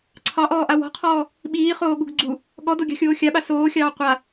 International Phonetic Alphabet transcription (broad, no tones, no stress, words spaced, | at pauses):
ǀʰɑʔɔːʔa wɔ̤qʰɔː | ɓiːχoːɠṳɡ ɡ͡ǀu | ɠɔdoɡʲɑ̤xʲoː xʲaɓa soːxʲɑː qʷa